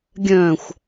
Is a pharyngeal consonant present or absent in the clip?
absent